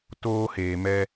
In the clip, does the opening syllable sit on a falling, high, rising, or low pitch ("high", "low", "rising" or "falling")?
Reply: high